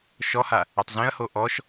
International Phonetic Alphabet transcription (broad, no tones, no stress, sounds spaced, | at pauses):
ʃ ɔ h a | ɛ tˤ z ẽ ɐ̯ h o ʔ ɔ ʃ